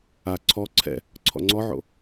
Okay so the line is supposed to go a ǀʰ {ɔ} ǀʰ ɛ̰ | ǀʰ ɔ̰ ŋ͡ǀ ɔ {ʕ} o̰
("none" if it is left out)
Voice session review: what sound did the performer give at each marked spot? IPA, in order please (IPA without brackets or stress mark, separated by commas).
ɔ, ʕ